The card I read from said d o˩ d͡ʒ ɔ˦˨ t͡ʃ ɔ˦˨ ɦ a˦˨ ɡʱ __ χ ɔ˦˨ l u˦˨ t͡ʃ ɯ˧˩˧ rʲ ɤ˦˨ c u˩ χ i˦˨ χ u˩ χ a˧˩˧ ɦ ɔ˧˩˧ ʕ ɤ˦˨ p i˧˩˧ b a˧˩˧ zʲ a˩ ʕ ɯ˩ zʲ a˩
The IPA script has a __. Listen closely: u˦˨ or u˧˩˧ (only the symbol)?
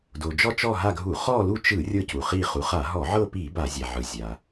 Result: u˧˩˧